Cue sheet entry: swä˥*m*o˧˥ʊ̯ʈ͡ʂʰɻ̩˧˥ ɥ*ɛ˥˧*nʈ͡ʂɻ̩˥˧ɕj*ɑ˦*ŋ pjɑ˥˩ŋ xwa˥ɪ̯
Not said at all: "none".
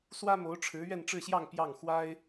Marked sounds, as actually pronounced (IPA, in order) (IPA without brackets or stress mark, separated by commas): m, ɛ˥˧, ɑ˥˧